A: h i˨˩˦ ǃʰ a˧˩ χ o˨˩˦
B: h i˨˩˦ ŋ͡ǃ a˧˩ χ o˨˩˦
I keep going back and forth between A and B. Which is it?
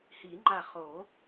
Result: B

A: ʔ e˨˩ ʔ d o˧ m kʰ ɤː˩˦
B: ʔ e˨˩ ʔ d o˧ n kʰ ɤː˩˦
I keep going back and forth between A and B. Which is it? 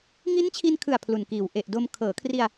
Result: A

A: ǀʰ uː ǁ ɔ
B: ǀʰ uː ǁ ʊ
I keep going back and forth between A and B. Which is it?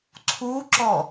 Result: A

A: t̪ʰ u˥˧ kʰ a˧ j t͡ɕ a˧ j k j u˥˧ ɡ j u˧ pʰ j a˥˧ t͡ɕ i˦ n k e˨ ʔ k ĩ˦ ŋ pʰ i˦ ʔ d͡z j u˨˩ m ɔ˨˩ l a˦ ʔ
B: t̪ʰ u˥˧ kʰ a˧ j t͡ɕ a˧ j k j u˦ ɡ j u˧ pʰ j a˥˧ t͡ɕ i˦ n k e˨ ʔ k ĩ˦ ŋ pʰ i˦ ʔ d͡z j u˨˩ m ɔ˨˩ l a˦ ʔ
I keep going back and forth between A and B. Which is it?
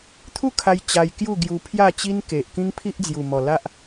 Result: A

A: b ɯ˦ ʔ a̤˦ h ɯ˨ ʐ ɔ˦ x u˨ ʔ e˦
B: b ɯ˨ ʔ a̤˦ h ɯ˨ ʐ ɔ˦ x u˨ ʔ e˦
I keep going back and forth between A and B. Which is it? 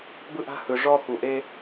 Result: A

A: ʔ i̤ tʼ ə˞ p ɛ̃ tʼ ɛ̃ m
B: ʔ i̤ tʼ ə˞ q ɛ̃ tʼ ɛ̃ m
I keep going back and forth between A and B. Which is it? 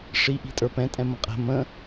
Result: A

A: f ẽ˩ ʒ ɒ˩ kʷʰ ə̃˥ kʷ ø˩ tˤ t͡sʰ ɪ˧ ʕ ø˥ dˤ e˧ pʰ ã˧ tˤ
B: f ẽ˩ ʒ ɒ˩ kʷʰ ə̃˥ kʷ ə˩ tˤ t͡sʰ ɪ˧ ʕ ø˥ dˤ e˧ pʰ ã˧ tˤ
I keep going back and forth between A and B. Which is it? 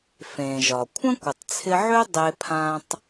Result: B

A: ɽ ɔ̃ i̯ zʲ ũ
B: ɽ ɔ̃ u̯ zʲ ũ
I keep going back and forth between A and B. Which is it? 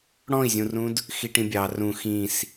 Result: A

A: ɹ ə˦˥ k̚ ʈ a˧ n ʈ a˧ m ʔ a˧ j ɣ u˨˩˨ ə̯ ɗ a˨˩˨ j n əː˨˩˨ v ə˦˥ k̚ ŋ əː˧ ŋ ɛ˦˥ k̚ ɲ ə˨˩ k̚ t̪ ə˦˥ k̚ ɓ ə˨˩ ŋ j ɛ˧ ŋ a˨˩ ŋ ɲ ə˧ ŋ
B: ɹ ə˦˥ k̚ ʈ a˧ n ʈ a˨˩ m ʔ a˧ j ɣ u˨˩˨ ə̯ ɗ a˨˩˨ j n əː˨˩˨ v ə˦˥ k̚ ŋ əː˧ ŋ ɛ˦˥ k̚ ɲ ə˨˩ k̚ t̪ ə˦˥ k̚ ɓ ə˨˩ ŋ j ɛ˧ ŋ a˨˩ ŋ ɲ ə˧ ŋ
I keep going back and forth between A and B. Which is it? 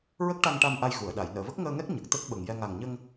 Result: A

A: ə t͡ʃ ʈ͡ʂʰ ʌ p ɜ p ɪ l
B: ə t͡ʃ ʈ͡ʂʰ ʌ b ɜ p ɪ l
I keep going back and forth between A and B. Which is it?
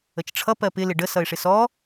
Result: A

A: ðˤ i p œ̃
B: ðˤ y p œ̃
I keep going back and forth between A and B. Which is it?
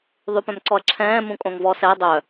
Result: B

